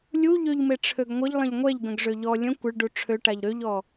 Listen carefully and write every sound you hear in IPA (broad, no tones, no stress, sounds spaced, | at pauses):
lʲ u ʎ ø ʎ m e ʈ͡ʂʰ ø ɡ ŋʷ ə ʎ lˠ ə̃ ʎ ŋʷ ɛ ʎ ɡ ə̃ ɡ ʐ ø ʎ ɔ lʲ ə̃ kʷ ə ɭ ɖ u ʈ͡ʂʰ ø ʈ a ʎ ɾ ø ʎ ɔ